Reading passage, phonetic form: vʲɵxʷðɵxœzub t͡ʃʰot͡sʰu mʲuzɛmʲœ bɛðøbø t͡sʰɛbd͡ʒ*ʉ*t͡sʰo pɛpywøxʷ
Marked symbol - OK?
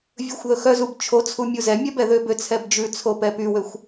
yes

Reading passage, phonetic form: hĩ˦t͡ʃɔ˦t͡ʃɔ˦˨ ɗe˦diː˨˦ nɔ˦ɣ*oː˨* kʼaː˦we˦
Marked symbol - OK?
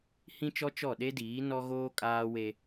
no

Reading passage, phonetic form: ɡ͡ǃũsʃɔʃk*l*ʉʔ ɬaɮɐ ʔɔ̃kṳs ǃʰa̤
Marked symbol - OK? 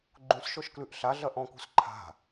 yes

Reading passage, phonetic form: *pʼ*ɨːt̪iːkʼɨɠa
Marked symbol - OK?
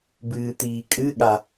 no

